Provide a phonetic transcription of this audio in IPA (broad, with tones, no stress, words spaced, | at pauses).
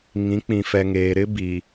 ŋĩ˨˦k͡pĩ˨fɛ˨ ŋeː˨ɾɪ˦bi˨